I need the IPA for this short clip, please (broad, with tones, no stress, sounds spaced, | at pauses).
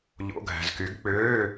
ʎ o̰˧˥˧ ɡʱ æ̤˨ z k y˨˦ ɡ k͡p øː˧˥˧